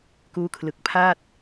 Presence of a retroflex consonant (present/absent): absent